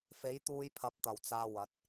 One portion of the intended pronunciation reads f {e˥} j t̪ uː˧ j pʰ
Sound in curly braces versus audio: incorrect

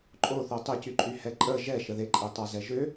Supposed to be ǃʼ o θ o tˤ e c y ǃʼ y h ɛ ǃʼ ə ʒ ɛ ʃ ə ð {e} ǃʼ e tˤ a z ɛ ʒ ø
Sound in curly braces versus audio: correct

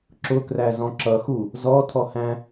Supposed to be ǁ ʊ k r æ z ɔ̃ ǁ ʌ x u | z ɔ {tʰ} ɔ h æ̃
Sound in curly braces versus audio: correct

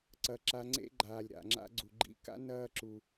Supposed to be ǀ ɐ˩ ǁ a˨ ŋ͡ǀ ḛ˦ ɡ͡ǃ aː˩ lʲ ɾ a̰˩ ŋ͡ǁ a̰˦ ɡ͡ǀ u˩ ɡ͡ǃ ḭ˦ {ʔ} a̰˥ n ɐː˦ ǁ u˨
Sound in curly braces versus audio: incorrect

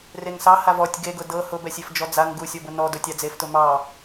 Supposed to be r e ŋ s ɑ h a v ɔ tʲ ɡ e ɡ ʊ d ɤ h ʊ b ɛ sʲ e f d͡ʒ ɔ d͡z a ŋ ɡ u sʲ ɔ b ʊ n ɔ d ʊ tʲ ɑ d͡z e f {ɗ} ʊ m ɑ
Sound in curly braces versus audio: incorrect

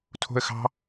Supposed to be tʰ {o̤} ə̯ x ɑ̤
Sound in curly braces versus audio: correct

